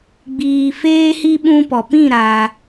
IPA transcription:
ɡ͡b iː˧ f eː˦ h i˦ ɓ ũ˧ p ɔ˨ p ĩ˦˨ ɾ a˧

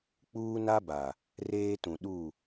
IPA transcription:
k͡p uː˦ n a˦ b a˨ | r eː˦ t ũ˨ ɗ u˦˨

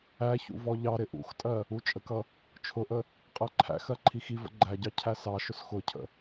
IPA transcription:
æ ç ṵ v ɔ ʎ ɑ ɾ ɪ ʔ ṵ x tʼ ɜ | u t͡ʃʼ ə k ʌ | t͡ʃʰ ʊ ʔ ə | qʼ ɜ ǃʰ æ̰ x ɜ ǃʰ i x i v ə̰ ɡ͡ǃ æ ɟ ɑ cʰ æ s ɑ ʃ ʊ s x ʊ cʰ ə̰

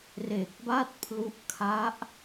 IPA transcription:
r e˨˩ k̚ b a˥˩ t̚ pʰ l u˦˥ ʔ kʰ a˦˥ ʔ

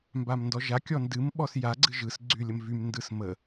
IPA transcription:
m b a m n d ɔ ʒ a kʲ ɔ n d ɨ m ɓ ɔ s j a ɡ͡ǀ ɨ ʒ ɯ s ɡ͡ǀ y lʲ ə m v y m n d ɯ s m ə

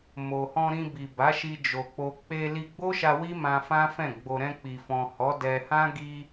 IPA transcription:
m o˨ h ɔ̃˧ ɾ ĩ˧ b i˨ b a˨˦ ʃ i˧ d͡ʒ o˨ k͡p o˧ k͡p e˧ l i˧ ɡ͡b o˦ ʃ a˧ w i˦ m ã˧ f ã˦ f ɛ̃˦˨ ɡ͡b o˧ ɾ ɛ̃˧ k͡p i˨ f ɔ̃˨ h ɔ˨˦ d ɛ˧ h ã˦ ɡ i˧

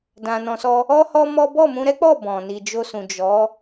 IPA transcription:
d ã˧ n ɔ̃˧ s ɔ˦ | ɔ˦ h ɔ˦ m ɔ˦ b ɔ˦˨ m ũ˧ ɾ ɛ˦ k͡p ɔ˦˨ b ɔ̃˨ n i˨ d͡ʒ o˧ s ũ˨ d͡ʒ ɔ˨˦

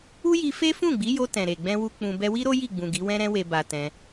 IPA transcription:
u˦ j i˧ f e˦ f ũ˦˨ ɡ͡b i˨˦ j o˧ t ɛ̃˨ ɾ e˨ ɡ͡b ɛ̃˧ w u˧ k͡p ũ˧ b ɛ˧ w i˦ ɾ o˦ j i˦˨ ɡ͡b ũ˨ ɡ i˨˦ w ɛ̃˦ ɾ ɛ̃˦ w e˧ b a˧ t ɛ̃˧

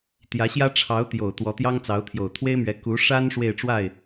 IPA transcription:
t̪ j ä˧˥ ɕ j ä˥ ʈ͡ʂʰ ɑ˧˥ ʊ̯ t̪ j o˨˩ ʊ̯ t̪ w ɔ˧˥ t̪ j ɑ˥ ŋ t͡s ɑ˧˥ ʊ̯ t̪ʰ j o˨˩ ʊ̯ t̪ʰ w e˥ ɪ̯ m ɥ ɛ˧˥ k u˧˥ ʂ a˥ n ʂ w e˥˧ ɪ̯ ʈ͡ʂ w a˥˩ ɪ̯

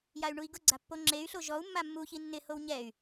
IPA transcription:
j a y̯ ɳ u i̯ ɡ ʊ ɡ͡ǀ a pː o ŋ͡ǁ e y̯ ɬ o ʒ ɔ u̯ mː a mː u ç i nː ɪ h o w ɲ ɛ y̯

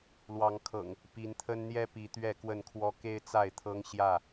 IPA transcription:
l w ɑ˨˦ ŋ kʰ ɤ̰˨˩ ŋ | p i˨˦ n t̪ʰ ə˦ n n̪ j ɛ˦ p i˨˦ t̪ ɥ ɛ˥˨ k w ə˥˨ n kʰ w ɔ˦ k e˦ ɪ̯ t͡s a˥˨ ɪ̯ t̪ʰ ɤ˦ ŋ ɕ j ä˥˨

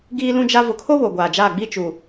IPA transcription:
ɡ iː˦ l ũ˦ d͡ʒ a˦ v ʊ˨ kʰ o˦ β o˨ ɡʷ aː˨ d͡ʒ aː˦˨ ɡ͡b iː˦ t͡ʃ u˨

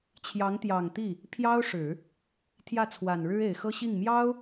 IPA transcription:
t͡ɕʰ j ɑ˧˥ ŋ t̪ j ɑ˨˩ ŋ t̪ i˥˩ | pʰ j ɑ˥ ʊ̯ ʂ ɻ̩˨˩˦ | t̪ʰ j ä˥˩ t͡sʰ w a˨˩ n ɻ ɻ̩˥ e˨˩ ɪ̯ x ɤ˥ ɕ i˥˩ ŋ m j ɑ˥ ʊ̯

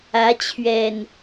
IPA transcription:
ä˨˦ t͡ɕʰ ɥ ɛ˨˩ n

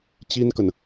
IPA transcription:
t͡ɕ i˥ n k ə˨ n

